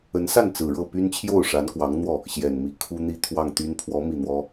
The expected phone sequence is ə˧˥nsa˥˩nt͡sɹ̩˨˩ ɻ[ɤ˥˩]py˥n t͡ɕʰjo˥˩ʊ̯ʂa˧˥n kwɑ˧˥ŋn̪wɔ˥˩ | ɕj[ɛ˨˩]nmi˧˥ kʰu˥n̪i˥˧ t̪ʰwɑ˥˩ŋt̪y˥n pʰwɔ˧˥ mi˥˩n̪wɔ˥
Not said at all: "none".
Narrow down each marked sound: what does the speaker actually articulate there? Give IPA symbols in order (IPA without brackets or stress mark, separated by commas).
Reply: ɤ˥˩, ɛ˨˩